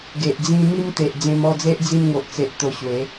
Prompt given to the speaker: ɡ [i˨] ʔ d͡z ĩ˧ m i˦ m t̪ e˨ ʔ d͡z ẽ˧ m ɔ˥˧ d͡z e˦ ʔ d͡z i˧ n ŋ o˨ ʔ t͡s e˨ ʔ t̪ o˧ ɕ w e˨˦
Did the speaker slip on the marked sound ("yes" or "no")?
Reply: yes